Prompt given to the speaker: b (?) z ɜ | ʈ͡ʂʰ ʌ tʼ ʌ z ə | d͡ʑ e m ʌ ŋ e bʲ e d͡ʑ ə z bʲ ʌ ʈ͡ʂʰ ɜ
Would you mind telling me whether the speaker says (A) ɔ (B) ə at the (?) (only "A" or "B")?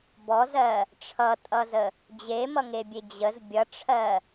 A